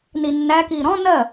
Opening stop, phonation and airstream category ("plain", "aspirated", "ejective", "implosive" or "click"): plain